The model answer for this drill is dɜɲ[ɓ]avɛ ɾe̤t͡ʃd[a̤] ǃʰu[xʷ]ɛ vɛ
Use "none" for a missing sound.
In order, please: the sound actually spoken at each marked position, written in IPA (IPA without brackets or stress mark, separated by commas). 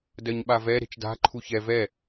ɓ, a̤, ç